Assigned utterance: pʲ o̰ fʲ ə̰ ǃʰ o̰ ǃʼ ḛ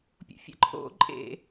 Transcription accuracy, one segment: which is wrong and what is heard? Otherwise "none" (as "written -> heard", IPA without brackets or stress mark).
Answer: none